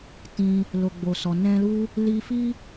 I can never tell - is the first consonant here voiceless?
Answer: yes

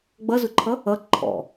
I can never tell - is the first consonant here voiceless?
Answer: no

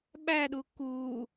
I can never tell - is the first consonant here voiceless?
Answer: no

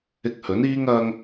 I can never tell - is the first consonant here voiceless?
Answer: yes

